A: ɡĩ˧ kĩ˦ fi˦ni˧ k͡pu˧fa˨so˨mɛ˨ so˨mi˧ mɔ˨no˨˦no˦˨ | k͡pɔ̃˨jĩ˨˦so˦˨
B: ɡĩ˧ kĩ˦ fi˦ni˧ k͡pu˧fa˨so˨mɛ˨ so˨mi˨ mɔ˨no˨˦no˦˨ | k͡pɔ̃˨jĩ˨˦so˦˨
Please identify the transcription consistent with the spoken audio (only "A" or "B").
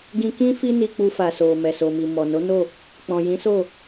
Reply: B